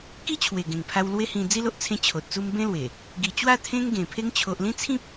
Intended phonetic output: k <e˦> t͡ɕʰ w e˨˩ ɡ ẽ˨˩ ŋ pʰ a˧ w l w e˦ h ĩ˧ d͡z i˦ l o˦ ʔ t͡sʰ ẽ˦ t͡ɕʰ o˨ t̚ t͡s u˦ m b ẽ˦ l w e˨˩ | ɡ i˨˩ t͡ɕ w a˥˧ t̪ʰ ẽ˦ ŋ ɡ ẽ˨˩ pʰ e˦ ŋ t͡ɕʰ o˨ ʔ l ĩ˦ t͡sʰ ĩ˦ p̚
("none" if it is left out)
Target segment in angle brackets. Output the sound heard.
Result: i˦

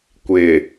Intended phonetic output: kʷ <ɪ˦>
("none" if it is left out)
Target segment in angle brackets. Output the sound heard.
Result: ɪ˨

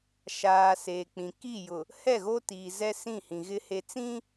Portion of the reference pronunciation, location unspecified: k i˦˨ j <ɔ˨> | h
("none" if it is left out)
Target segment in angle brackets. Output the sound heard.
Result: ʊ˨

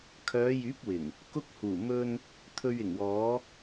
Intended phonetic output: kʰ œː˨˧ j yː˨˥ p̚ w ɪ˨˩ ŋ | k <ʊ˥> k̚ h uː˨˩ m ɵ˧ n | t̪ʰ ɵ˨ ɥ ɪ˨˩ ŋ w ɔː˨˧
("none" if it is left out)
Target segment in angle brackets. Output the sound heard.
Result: ʊ˧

